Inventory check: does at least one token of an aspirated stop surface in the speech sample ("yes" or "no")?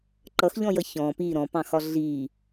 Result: no